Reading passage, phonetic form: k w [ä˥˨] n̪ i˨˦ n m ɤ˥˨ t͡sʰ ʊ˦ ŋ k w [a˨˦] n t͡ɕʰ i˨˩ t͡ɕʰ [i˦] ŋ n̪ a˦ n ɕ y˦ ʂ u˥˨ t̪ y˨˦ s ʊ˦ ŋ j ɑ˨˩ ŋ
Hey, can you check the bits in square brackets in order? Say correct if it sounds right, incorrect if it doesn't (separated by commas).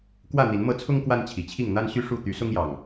correct, incorrect, incorrect